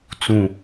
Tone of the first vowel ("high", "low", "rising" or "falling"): falling